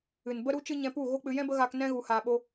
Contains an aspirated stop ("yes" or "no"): no